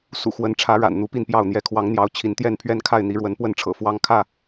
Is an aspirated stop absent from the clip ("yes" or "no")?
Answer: no